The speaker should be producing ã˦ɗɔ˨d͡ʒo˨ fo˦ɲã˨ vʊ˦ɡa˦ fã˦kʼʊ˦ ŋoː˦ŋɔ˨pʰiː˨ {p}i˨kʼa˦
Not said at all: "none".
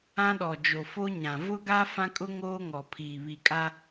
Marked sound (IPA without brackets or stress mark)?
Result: β